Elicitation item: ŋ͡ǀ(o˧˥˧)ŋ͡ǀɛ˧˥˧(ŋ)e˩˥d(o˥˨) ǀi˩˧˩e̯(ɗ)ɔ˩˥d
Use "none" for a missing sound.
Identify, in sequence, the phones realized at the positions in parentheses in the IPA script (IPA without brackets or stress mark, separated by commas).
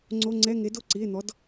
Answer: o˧˥˧, ŋ, o˥˨, n̪